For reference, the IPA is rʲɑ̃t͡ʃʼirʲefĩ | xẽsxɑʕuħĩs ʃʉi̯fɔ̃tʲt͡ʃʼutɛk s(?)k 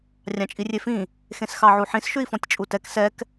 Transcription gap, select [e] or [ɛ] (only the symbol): ɛ